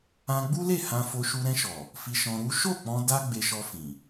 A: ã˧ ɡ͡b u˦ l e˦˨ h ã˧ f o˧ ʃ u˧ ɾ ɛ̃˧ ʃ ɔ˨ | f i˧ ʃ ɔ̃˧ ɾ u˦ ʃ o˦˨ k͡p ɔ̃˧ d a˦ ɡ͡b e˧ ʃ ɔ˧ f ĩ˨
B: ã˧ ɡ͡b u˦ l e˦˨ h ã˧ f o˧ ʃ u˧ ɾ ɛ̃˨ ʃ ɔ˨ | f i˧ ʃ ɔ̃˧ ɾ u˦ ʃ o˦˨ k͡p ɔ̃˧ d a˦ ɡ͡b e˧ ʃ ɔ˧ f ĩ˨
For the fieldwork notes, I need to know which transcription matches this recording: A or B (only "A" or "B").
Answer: A